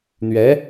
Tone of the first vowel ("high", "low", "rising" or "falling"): rising